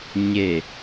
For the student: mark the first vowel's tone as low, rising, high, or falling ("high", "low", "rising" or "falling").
low